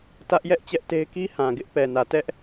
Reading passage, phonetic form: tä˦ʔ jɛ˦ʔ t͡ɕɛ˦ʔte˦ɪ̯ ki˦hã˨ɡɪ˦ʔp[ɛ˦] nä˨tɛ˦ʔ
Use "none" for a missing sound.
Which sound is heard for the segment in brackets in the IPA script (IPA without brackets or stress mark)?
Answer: ɛ˨